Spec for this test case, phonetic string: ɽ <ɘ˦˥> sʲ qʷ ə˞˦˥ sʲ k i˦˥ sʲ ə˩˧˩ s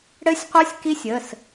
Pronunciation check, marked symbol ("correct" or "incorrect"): correct